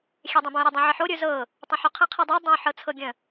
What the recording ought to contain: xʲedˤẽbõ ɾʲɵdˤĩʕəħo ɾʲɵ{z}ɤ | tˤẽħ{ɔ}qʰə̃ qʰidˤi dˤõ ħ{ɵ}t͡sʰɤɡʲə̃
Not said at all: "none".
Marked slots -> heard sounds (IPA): z, ɵ, ɤ

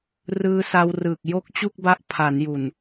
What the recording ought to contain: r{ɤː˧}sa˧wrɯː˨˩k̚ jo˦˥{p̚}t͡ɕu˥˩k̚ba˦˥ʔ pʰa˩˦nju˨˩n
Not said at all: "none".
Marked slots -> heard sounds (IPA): ɯː˧, k̚

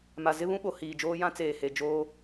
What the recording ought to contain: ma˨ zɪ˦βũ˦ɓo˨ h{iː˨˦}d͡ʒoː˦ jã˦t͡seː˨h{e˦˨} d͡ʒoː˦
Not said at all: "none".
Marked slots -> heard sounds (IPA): iː˨, e˨

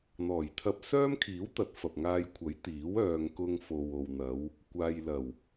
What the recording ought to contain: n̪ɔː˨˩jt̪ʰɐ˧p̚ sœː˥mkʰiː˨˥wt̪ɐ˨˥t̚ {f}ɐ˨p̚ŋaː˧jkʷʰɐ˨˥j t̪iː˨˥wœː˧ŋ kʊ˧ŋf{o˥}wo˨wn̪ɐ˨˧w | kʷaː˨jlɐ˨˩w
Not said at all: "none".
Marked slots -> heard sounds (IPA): f, o˨

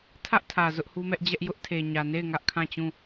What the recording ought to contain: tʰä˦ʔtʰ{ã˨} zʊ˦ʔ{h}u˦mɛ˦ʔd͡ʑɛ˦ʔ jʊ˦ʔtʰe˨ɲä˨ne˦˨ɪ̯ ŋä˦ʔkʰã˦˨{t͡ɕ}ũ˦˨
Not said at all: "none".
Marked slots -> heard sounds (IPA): ä˨, h, t͡ɕ

